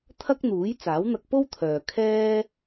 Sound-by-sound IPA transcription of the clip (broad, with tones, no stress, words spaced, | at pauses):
t̪ʰɐ˥k̚n̪uː˨˥j t͡saː˨˥wn̪ɐ˧k̚po˥wt̪ʰœː˨ kʰɛː˧